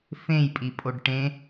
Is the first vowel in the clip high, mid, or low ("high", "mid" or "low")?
mid